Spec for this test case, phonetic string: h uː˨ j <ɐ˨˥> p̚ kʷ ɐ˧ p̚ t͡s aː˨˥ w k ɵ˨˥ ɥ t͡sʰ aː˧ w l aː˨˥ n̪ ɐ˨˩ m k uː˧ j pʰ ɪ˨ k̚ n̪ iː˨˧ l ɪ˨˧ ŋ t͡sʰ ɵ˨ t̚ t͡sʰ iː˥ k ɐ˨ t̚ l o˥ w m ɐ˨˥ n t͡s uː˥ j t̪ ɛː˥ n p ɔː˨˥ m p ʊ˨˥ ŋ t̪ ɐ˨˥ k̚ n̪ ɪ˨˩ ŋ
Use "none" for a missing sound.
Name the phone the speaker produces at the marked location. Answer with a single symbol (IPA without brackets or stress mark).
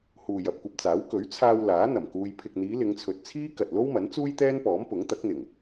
ɐ˨